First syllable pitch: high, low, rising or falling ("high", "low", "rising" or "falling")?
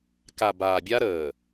low